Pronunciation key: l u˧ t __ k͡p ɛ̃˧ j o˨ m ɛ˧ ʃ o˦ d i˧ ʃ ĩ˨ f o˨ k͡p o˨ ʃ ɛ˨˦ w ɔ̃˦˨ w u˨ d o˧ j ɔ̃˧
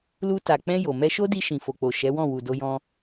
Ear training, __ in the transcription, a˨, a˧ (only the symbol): a˨